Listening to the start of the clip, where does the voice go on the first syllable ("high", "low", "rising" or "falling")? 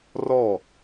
falling